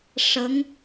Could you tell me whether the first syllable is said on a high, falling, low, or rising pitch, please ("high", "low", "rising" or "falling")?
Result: rising